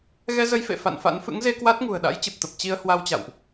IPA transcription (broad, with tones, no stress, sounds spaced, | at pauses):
ɣ ɛ˧ z ə˧ j f ḛ˧˨ f a̰˧˨ n f a̰˧˥ n f ɨ̰˧˥ ŋ z e˧ k w a˦˥ t̚ ŋ ṳ˨˩ ə̯ ɗ a̰˧˥ j t͡ɕ ɨ˨˩ p̚ t̪ ə˨˩ p̚ t͡ɕ i˧ ə̯ h w a˧ w t͡ɕ a̰˧˨ w ʔ